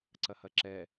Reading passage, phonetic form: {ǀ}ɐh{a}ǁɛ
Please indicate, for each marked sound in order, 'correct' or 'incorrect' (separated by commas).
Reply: correct, incorrect